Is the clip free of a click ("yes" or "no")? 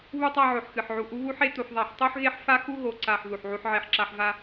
no